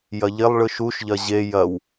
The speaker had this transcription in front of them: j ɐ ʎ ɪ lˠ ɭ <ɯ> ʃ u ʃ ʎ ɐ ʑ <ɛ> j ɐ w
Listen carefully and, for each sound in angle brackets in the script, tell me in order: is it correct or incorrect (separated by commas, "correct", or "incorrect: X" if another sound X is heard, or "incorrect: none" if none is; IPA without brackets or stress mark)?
correct, incorrect: e